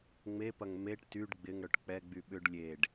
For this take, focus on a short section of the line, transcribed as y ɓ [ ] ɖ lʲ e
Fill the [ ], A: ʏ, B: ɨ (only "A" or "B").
A